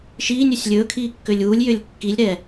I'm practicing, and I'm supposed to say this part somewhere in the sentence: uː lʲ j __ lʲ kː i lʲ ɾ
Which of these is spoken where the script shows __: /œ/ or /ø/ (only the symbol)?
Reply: ø